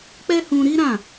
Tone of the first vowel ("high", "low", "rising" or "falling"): high